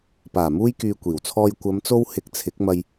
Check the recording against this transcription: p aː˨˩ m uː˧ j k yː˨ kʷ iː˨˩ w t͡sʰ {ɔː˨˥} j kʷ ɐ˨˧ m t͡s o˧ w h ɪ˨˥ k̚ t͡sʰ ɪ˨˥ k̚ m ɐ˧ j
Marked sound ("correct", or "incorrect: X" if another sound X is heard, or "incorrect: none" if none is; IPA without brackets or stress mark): incorrect: ɔː˧